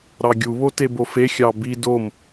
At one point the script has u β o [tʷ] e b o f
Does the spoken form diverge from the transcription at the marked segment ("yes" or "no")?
yes